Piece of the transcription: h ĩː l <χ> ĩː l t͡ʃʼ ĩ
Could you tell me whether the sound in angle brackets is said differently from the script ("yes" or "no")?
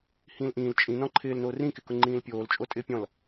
yes